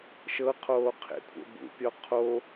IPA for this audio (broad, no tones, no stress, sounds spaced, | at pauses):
ʃ ɤ qʰ oː qʰ ḛ kʷʰ ḛ b ṵ pʲ ɔ qʰ o